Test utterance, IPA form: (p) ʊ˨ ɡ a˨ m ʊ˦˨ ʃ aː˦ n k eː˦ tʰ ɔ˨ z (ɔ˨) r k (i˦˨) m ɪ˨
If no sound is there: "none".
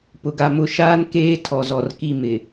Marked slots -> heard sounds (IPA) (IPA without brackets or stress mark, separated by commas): p, ɔ˨, i˦˨